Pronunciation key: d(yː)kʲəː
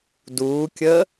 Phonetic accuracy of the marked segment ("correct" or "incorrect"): incorrect